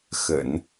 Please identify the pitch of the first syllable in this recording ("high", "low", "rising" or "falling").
low